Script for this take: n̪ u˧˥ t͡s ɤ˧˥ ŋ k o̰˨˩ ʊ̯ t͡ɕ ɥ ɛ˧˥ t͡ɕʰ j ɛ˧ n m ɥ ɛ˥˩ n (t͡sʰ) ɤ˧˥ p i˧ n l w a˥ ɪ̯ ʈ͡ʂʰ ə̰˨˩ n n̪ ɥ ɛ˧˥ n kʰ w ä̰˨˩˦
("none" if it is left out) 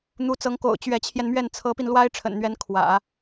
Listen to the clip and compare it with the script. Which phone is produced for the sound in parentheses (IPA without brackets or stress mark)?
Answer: t͡sʰ